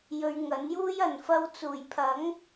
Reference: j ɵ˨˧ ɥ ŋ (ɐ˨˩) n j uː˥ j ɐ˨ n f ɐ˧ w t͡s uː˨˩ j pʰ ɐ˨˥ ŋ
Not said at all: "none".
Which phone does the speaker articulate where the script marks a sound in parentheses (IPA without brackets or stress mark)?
ɐ˨˥